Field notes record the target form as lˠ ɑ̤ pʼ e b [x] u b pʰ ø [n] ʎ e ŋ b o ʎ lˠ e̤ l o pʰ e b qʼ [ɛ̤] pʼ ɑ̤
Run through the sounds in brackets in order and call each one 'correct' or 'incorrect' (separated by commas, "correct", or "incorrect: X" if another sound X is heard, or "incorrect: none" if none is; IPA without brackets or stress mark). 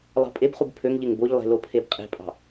incorrect: χ, incorrect: ŋ, incorrect: e̤